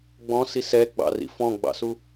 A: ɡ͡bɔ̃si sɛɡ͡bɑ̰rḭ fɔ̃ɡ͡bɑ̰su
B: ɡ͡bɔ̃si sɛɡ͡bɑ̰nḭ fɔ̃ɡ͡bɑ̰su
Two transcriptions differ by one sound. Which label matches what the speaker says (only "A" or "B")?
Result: A